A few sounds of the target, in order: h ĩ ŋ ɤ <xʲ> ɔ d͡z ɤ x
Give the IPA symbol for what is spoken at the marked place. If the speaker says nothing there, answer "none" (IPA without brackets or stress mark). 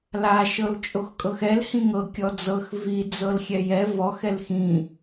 kʲ